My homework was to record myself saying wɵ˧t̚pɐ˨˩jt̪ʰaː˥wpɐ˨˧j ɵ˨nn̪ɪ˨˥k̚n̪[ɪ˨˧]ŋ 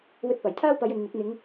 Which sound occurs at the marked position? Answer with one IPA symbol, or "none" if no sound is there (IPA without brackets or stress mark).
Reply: ɪ˨˧